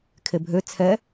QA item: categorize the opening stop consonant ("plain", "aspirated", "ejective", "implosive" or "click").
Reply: aspirated